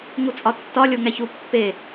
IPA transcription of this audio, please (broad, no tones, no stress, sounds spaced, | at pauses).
ŋ u t͡sʼ ɒ tː ɒ lʲ o ŋ æ ç u pː e